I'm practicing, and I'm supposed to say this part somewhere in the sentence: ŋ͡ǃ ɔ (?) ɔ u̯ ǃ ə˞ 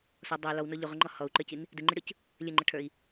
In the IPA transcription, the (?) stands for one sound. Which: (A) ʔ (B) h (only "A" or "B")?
B